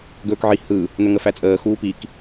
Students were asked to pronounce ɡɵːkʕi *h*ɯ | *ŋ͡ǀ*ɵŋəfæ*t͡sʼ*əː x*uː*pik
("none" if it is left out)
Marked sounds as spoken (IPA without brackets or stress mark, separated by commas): h, n̪, t͡sʼ, uː